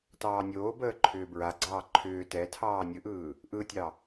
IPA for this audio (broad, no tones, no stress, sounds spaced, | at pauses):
t ɑː nʲ oː b əː ǃʰ ʏː b ɹ a ɡ͡ǀ ɑː ǃʰ ʏː t ɛ tʰ ɑː nʲ ɯ ʔ ɯː | ʔ ɯ tʲ ɑ